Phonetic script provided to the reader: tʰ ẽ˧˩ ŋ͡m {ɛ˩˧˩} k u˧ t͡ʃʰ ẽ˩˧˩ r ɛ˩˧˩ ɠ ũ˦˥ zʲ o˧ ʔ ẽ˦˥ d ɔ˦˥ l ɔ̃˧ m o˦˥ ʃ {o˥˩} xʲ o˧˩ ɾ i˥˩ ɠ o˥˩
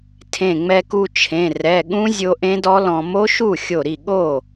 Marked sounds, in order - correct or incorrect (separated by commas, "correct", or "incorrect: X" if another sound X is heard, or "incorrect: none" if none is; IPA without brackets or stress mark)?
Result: incorrect: ɛ˧, incorrect: u˥˩